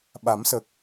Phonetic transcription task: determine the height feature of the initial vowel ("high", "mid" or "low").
low